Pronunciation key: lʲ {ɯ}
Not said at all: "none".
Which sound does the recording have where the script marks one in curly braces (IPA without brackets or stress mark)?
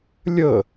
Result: ə